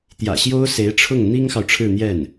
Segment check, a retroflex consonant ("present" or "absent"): present